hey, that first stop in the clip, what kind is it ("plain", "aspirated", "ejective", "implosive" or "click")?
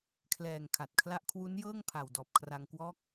aspirated